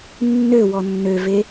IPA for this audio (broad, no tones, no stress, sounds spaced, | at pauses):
nː ø w ɔ nː ø v e